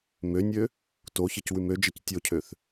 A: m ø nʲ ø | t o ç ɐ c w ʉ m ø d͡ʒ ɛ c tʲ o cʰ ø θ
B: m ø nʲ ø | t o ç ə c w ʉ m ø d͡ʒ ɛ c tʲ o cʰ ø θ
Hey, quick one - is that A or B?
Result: B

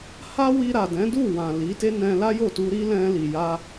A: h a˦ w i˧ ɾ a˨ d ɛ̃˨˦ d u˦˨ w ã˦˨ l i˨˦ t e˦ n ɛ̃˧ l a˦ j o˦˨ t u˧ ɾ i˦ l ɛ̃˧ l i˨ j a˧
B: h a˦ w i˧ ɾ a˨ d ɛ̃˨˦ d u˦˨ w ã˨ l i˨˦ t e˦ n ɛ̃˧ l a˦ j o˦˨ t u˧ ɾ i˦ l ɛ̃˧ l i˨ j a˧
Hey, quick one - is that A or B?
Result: B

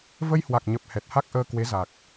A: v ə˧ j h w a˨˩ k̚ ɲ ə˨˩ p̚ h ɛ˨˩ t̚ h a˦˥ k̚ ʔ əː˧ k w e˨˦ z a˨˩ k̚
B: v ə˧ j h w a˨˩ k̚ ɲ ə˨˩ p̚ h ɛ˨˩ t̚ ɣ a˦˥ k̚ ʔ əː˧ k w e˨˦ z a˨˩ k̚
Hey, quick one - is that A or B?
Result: A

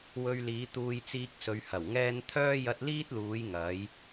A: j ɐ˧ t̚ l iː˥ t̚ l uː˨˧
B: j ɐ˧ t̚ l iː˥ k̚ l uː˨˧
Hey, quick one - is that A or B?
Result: A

